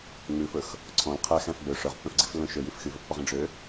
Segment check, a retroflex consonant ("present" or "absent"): present